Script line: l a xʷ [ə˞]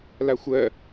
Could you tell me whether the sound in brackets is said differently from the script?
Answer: yes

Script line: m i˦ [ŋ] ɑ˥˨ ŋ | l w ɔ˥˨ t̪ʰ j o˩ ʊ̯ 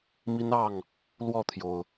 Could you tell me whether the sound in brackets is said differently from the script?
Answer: yes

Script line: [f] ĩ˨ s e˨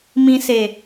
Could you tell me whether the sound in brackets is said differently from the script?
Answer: yes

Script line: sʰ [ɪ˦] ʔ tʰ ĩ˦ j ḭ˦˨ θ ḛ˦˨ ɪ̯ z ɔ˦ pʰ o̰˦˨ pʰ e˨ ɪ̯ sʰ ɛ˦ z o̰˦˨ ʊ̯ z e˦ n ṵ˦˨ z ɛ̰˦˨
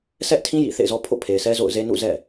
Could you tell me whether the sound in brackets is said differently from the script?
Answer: yes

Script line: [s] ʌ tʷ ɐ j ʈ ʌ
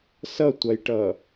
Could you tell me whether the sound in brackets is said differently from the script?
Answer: no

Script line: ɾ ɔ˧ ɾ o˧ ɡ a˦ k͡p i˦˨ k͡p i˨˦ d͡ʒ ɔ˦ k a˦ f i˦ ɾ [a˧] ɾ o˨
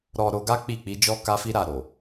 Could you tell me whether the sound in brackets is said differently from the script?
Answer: yes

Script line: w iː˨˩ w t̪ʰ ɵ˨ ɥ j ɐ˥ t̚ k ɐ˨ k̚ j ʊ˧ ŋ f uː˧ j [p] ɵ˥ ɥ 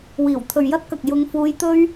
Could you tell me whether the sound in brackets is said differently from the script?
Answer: yes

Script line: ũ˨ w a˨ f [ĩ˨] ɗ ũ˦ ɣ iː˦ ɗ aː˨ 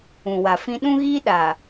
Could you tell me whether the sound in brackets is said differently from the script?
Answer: yes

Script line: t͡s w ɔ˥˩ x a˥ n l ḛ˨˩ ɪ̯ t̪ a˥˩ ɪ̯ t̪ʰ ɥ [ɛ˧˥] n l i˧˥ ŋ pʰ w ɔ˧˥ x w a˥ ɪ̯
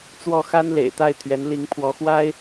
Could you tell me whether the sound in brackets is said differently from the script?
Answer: no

